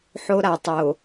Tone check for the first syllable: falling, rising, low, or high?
high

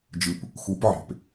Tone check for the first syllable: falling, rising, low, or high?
low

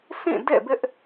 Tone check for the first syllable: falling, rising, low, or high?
falling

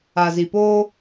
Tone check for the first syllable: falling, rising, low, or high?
low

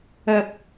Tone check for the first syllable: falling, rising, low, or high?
high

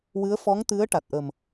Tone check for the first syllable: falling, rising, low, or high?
rising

